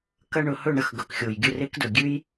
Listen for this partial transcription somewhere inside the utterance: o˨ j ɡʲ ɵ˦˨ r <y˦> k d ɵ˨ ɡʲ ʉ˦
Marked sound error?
yes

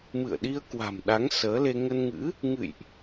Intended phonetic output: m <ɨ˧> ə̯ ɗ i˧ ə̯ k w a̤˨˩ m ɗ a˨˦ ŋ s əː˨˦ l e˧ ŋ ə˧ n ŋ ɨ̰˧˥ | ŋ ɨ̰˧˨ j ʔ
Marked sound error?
yes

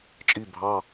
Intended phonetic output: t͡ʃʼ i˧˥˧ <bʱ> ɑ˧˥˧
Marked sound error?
no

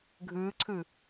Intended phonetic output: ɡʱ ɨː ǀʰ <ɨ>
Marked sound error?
no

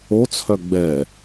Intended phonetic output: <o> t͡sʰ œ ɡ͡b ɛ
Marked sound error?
no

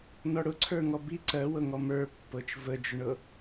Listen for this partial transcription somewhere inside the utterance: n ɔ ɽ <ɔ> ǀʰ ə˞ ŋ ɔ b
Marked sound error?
yes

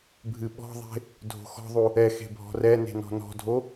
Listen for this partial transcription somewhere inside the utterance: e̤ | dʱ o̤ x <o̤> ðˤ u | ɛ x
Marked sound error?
yes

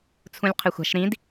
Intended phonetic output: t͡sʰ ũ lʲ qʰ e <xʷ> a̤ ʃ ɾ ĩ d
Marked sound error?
no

